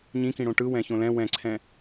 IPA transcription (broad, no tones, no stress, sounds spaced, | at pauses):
ɲ ĩ k ĩ ɽ õ ʈ ɯ w ɛ̃ ç õ l ɛ̃ w ɛ̃ ǀʰ ɛ̃